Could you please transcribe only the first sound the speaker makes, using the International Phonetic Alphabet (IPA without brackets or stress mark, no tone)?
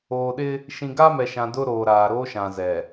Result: oː